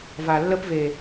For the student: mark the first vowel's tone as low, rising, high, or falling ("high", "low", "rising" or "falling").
low